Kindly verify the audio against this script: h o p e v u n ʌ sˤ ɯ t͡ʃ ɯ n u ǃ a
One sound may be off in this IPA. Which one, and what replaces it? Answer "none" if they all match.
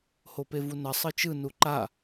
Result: none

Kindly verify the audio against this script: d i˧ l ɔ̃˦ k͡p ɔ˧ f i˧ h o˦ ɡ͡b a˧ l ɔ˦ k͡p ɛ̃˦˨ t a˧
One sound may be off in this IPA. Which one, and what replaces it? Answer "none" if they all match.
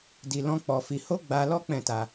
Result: none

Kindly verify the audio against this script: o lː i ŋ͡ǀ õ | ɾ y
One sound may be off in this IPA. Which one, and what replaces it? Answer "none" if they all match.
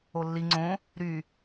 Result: none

